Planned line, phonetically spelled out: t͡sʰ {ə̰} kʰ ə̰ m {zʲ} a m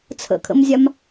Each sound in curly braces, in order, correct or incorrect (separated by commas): correct, correct